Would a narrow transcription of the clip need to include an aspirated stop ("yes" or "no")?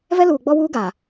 no